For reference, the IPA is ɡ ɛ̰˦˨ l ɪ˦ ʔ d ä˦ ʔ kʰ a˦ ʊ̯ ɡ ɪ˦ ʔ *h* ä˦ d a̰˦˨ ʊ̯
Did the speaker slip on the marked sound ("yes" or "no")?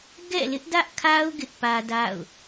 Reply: yes